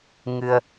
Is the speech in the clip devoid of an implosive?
yes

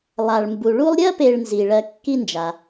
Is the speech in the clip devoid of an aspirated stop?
yes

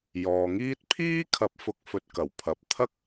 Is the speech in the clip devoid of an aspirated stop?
no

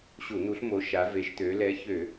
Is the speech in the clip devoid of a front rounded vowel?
no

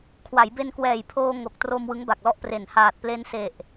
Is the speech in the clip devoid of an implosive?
yes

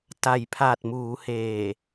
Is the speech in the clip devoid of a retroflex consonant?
yes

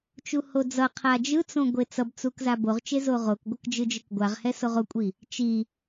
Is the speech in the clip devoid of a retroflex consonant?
yes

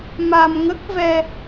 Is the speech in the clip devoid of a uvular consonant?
yes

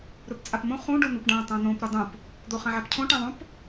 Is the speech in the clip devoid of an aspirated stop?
no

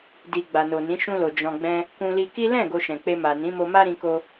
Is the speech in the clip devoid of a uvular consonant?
yes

